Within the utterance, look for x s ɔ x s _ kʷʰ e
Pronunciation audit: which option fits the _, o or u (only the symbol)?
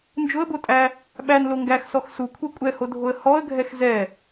u